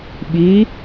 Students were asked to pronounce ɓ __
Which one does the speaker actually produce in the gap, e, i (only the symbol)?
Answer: i